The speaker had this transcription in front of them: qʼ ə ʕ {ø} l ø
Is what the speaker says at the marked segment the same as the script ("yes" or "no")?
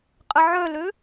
no